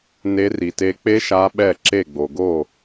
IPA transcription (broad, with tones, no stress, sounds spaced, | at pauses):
n e˦˥ r i˧ t e˦˥ k͡p e˦˥ ʃ a˦˥ ɓ ɛ˥˧ ǁ e˥˧ ɡ͡b o˧ ɡ o˥˧